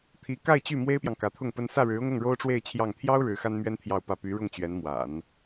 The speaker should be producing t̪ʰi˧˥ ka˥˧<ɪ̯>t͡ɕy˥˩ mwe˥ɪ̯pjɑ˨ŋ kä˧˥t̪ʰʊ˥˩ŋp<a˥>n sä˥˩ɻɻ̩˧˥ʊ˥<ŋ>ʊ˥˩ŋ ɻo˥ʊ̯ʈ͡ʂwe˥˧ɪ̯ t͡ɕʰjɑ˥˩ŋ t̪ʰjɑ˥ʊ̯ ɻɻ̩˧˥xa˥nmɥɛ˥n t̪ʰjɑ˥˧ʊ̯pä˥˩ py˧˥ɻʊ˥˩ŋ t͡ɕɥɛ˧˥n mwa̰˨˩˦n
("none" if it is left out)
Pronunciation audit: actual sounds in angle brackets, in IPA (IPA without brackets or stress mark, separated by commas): ɪ̯, ə˥, ŋ